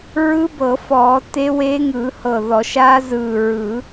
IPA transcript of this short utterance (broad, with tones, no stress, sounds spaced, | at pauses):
ɹ ɯ˦˥ b ɤ˨˩˦ f ɔː˨˩˦ t e˦˥ w e˦˥ ŋ ɯ˨˩˦ h ɤ˧˩ ð ɔ˨˩˦ ʃ aː˦˥ z ɯː˧˩ ɹ ɯ˨˩˦